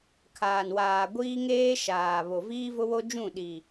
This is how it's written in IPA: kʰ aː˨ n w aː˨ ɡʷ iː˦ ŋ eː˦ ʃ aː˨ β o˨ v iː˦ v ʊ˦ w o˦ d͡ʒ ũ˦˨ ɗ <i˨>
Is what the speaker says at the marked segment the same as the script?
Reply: yes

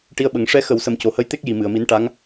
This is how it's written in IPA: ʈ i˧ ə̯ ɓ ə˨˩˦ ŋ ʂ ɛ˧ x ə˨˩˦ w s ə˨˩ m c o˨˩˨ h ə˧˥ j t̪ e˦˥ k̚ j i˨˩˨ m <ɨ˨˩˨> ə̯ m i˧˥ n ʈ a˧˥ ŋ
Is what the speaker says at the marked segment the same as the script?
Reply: yes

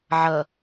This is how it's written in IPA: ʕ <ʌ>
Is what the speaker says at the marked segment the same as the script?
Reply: yes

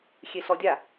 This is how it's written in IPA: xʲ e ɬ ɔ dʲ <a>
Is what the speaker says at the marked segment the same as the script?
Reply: yes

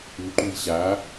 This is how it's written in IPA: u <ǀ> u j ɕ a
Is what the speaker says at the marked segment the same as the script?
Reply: no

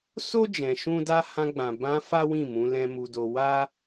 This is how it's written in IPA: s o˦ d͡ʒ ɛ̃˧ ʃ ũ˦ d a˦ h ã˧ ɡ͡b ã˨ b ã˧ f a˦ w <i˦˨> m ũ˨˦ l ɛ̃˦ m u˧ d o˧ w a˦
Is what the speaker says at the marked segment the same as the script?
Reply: no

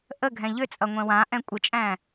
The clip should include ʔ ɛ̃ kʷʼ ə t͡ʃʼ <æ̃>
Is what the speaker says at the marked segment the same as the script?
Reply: yes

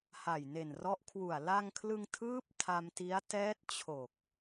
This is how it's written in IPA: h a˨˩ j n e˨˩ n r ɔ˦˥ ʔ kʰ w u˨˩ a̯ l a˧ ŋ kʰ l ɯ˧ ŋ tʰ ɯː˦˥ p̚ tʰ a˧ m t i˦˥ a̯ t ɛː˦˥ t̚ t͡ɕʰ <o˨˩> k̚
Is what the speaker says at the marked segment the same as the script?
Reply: yes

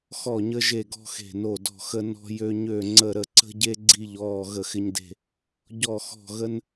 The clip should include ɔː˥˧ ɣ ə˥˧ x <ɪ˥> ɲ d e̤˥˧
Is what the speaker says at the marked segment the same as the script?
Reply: yes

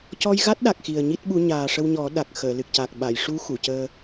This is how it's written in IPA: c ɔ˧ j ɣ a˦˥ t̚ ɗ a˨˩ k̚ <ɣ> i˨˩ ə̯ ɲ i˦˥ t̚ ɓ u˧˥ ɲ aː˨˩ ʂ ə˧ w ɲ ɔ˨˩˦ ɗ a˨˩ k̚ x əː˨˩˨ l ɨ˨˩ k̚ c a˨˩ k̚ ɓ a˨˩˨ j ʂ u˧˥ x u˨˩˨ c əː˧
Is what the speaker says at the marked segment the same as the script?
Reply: no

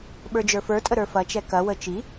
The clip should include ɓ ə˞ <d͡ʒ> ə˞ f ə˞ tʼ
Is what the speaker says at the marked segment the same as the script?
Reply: yes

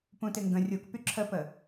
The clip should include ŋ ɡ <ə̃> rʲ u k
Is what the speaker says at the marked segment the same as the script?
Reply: yes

